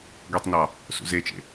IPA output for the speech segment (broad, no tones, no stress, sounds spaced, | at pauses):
ɡʷ e tˤ n ɑ | s ṵ z e t͡ʃ ḛ